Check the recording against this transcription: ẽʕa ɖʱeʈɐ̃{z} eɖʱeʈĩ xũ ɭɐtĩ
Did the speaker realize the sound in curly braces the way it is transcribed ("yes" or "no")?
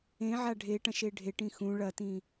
no